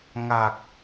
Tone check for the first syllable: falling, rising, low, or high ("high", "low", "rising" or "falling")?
low